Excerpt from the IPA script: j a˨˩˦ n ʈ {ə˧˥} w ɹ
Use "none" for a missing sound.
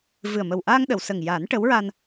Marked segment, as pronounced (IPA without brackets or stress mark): ə˧˥